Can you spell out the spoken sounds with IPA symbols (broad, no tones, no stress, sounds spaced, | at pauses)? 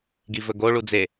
ɡ i v ɵ ɡ o ɭ u d͡z e